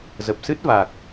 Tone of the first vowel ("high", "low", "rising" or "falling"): low